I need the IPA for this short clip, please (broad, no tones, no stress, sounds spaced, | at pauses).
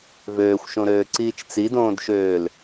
v øː xʷ ʃ õ ɾ øː ǀ iː t͡ʃ t͡s i d õː d ʃ øː l